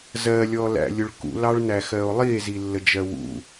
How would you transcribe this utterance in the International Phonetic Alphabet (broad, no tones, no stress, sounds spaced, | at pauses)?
z ɜ lʲ ɔ l æ̰ lʲ ʊ ɭ k ṵ l ɑ ɭ n æ x ɜ o̯ lˠ i e̯ z i lː ə d͡ʒ ɜ w ṵ